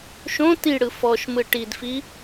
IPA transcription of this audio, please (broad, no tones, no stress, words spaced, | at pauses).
ʃõ tiɽɯ fɔʃmɯ ʈidfi